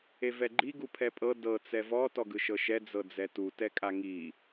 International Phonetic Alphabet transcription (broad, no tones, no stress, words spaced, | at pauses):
evɛɡ͡ǃi ɡupʰɛpʼɤ dɤ t͡sɛvɔ tɔɡɯʃɤʃɛ d͡zɤd͡zɛtu tɛkʼaŋi